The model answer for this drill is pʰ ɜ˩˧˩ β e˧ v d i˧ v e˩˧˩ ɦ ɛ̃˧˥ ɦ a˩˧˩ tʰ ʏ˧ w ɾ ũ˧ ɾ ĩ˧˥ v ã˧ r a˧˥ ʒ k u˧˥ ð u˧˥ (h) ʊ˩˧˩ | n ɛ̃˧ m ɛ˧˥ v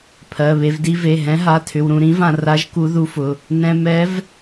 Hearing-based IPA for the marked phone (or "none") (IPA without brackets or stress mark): f